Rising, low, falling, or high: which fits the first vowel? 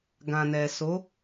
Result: low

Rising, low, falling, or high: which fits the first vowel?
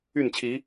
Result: falling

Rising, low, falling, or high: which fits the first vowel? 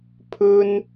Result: high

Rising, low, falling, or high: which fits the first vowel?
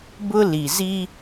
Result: high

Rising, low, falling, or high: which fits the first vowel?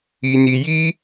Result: low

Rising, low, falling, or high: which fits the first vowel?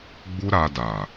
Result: high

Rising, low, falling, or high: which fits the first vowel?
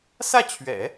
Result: falling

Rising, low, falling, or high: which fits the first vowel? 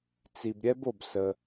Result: low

